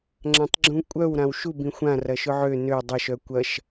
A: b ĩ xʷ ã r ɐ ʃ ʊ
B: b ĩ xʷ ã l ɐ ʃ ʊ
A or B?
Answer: A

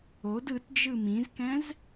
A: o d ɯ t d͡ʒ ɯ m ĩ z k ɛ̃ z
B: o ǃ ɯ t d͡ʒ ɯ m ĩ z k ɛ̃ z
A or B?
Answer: A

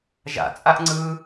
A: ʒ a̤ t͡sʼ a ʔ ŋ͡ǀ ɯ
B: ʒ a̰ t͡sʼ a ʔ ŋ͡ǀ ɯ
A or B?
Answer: B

